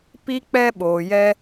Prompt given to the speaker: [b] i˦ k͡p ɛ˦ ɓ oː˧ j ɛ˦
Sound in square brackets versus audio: incorrect: p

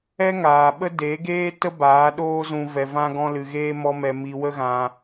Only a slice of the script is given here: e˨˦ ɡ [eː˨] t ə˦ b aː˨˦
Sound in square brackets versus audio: incorrect: eː˦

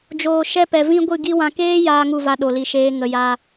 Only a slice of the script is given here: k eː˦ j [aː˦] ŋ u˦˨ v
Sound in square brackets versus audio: correct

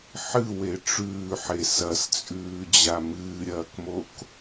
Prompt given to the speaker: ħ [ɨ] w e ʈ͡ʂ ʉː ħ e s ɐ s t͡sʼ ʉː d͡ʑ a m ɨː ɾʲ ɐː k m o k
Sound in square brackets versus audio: correct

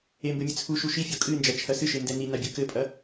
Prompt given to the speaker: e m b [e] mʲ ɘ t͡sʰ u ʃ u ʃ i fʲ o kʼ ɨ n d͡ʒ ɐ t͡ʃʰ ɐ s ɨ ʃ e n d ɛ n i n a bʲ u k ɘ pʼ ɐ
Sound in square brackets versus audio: incorrect: ɘ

